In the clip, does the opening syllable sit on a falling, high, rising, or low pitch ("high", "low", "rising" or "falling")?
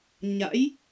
rising